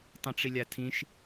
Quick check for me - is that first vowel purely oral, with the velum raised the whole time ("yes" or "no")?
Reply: no